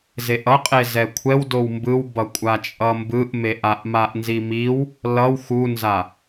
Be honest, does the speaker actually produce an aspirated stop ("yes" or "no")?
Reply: yes